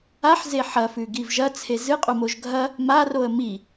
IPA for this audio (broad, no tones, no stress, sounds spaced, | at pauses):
a ħ z e ħ ɐ f ʉ ɡ i v ʒ ɐ t͡sʰ e z ɨ qʼ u m o ʒ ɡʱ ɐ | m a r o ə̯ m i